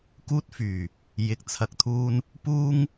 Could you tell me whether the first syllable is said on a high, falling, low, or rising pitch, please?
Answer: high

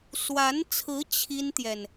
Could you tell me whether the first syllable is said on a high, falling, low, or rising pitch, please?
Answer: rising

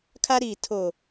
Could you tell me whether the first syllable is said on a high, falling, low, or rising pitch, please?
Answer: high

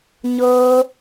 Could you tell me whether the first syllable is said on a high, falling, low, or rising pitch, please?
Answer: high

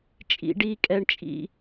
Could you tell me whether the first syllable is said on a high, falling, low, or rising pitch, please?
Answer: low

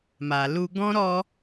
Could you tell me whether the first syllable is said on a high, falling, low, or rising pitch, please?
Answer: low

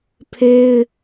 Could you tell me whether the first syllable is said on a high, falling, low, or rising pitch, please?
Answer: high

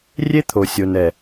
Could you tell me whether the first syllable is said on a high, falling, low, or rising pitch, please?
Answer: high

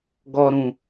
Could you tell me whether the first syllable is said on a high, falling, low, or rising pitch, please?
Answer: high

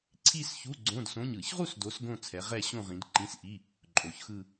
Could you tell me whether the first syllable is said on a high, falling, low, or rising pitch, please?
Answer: falling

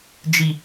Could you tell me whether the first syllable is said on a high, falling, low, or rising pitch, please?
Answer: high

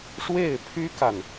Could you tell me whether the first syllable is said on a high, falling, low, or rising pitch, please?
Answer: falling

